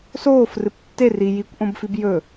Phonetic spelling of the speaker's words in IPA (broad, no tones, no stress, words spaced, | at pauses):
soːfrɨp tːe ri jikʷʔõbfib jɵ